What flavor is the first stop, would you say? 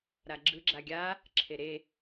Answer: click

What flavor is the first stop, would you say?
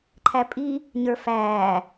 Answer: click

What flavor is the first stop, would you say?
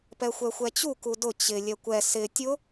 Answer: plain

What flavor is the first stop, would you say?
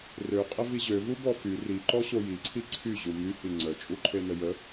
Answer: ejective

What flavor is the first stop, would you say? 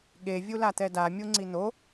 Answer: implosive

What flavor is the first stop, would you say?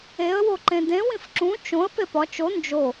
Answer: click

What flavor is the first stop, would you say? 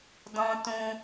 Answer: plain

